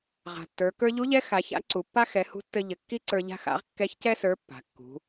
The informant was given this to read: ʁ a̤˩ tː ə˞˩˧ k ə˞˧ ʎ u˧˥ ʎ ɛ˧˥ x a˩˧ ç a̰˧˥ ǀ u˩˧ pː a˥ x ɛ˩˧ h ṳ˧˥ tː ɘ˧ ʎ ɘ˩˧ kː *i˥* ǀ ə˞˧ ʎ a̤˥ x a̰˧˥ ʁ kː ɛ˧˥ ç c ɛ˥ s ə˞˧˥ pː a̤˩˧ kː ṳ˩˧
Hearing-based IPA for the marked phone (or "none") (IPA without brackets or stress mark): i˥